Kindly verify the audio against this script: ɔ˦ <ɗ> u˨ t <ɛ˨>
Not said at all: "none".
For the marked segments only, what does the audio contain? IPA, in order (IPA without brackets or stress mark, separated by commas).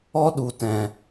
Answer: ɗ, ɛ̃˨